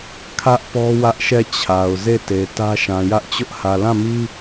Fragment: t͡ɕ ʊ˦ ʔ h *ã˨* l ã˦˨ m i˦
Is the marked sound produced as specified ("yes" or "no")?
no